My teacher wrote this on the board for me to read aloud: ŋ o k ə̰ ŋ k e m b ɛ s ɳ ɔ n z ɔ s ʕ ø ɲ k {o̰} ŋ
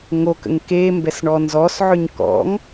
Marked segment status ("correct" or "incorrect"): incorrect